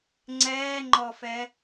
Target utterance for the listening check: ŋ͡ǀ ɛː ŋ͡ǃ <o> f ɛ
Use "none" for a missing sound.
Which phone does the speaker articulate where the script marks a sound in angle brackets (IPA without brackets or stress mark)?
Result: ɔ